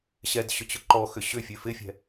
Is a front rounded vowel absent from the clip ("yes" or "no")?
no